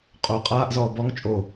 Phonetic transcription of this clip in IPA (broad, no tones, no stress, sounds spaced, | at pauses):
qʼ o qʼ aː ʔ z ɔː b ɔ ŋ t͡ʃʼ o